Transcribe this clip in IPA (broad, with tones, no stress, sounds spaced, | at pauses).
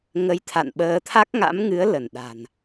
ŋ ə˧ j t̪ʰ a̰˧˨ n ɓ əː˧ t̪ʰ a˦˥ k̚ ŋ a̰˧˥ m ŋ ɨ˨˦ ə̯ l ə˧˩ n ɗ a̤˨˩ n